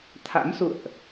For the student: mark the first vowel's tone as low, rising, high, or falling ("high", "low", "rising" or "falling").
rising